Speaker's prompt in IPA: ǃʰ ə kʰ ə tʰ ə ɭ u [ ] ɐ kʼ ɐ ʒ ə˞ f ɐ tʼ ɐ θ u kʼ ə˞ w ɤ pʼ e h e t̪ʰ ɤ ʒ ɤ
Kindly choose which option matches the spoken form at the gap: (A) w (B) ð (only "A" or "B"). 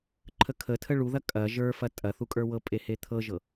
B